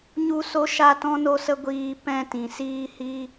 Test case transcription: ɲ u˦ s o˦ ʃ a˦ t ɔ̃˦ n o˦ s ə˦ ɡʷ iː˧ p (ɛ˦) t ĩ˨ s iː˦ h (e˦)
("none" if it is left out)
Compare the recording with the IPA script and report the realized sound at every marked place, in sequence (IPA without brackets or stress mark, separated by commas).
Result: ɛ̃˦, i˦